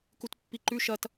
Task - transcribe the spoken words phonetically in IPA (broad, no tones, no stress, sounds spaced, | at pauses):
k u t pː i ǃ ʉ ʃ ɐ t